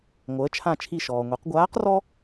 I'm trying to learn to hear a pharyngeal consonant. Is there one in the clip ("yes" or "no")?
no